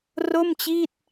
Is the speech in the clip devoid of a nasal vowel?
yes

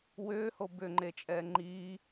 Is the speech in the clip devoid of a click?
no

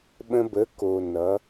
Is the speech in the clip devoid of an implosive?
no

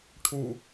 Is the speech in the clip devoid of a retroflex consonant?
no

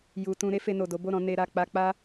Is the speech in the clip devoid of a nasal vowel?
no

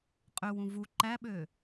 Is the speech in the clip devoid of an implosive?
no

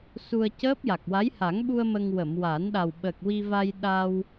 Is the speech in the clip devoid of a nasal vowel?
yes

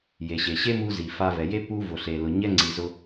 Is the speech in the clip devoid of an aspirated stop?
yes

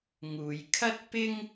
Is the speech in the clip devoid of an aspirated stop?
no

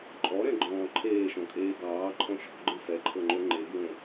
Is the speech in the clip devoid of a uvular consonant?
yes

